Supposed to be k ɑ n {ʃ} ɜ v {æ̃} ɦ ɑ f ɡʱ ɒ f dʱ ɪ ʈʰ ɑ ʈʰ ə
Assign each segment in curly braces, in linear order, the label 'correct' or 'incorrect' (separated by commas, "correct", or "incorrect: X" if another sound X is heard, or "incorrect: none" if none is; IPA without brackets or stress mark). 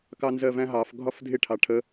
incorrect: z, correct